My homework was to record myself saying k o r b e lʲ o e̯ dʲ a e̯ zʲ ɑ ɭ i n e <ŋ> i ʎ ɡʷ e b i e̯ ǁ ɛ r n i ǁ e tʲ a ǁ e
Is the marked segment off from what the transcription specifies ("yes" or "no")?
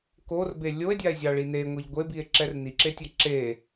yes